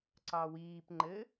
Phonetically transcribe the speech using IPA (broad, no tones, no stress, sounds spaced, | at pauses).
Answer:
ǀ ɑ w iː p ŋ͡ǃ ɘ